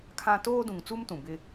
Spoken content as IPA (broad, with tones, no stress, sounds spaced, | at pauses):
kʰ ã˦ t oː˦ d ũ˨ ŋ t͡s u˦ m t ũ˨ b ɪ˦